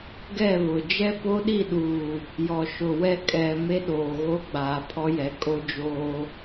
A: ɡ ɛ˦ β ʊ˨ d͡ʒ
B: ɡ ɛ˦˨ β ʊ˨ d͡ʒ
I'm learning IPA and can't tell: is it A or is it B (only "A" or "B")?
B